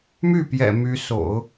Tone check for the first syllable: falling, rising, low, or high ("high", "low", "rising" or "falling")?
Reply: falling